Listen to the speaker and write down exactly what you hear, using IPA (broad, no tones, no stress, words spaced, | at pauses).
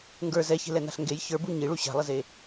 ŋɡə˞ zɛçe̤lɛna̤ɬ ŋɡej çə˞bu ɲiɭu ɕa̤lˠəze